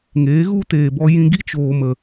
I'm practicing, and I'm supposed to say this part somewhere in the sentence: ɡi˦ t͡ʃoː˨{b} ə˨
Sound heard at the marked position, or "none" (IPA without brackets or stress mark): m